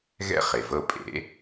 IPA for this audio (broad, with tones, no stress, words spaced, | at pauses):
ɣɛ̰˦χe˩vɤ˦˨pʼḛ˨˩˦